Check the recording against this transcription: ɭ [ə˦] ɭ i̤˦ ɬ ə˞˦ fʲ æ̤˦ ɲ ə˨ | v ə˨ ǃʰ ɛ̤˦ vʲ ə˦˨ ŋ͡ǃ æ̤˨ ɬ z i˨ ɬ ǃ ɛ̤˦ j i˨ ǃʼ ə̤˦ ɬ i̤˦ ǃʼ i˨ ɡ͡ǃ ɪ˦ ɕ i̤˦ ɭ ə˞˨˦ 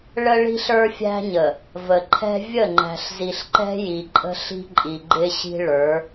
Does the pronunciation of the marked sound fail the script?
no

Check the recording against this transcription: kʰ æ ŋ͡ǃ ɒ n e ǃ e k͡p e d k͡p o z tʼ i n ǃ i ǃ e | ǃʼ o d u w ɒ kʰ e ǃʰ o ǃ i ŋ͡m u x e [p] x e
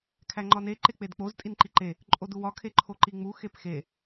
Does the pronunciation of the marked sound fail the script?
no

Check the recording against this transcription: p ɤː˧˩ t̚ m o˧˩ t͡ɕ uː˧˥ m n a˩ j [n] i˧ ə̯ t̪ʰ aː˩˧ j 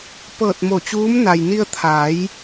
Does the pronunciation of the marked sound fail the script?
no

